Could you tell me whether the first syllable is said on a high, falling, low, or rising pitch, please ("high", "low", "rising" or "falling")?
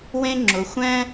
high